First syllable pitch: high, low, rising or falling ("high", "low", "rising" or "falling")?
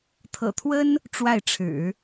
low